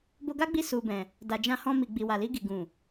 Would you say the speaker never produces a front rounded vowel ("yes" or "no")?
yes